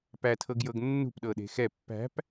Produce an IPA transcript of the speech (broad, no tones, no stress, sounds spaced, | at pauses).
p æ tʰ ɤ ɡ j ɤ ɡ nː ṳ p ɗ ɤ ɗ e̤ x ɛ pː æ̤ p